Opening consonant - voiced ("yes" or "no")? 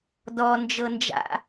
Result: yes